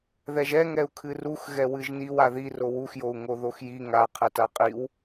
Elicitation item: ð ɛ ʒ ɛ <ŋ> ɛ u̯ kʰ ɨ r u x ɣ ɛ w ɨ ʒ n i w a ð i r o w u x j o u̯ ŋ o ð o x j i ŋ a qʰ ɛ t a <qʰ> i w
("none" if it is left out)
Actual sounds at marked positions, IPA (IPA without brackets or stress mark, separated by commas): ŋ, qʼ